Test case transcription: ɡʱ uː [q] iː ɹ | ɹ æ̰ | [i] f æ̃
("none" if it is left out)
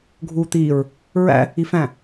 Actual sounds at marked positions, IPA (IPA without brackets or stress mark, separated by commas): t̪, i